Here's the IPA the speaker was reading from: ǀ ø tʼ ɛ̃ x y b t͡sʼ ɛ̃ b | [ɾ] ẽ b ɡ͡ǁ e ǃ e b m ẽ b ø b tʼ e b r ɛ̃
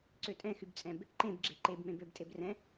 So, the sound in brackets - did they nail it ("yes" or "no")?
no